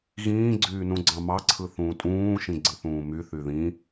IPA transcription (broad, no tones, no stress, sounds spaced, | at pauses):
ɣ ĩː ɡ͡ǀ yː n ũ ɡ͡ǀ ɑ̃ m ɑ ǀʰ ɯ θ ũː tʼ ũː ʃ ĩ ɡ͡ǀ ɯ θ ũː m y θ y ð ĩ